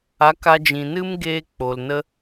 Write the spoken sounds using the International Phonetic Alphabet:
a˨˦ k a˧ d͡ʒ ĩ˨ n ɨ˦ m ɡ eː˧ k͡p o˨ l n ə˦

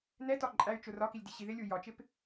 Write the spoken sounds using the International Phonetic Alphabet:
n ɛ t ɒ ǃʼ æ y̯ t͡ʃ ʊ r ɒ k i lʲ d i ɕ i ð ɪ lʲ u j ɒ t͡ʃ ɪ p

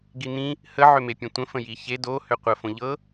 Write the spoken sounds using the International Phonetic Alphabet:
ɡ i n̪ ĩ | h ə ʕ ʏ m e pʲ ẽ tʷ ə̃ f ə̃ j i ç e d o h ʏ qʷ ə f õ ʎ ɤ

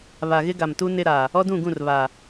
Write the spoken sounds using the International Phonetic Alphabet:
β a˨ ɣ ɪ˦ ɡ a˨ m t u˦ n ɪ˦ ɾ a˨ | ɔ˦ d ũ˦˨ ɡ ũ˦˨ r β a˨

